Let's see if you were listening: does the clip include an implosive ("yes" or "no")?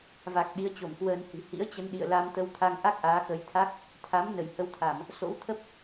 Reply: yes